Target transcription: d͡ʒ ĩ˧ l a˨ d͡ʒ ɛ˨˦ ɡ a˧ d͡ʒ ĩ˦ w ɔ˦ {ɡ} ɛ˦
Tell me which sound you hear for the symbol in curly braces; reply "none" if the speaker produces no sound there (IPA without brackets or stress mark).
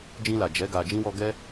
ɡ